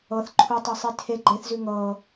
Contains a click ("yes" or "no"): yes